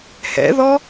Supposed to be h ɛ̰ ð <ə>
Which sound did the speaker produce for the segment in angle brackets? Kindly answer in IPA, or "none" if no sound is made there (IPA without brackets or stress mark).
ɔ